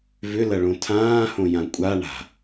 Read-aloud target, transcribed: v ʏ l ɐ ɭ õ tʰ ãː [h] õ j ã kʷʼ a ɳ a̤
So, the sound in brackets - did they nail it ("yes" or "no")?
yes